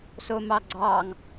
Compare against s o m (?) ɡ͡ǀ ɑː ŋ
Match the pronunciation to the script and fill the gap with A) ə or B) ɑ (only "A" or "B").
B